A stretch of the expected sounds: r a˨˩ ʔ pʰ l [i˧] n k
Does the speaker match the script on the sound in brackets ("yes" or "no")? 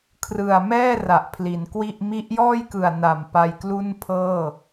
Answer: no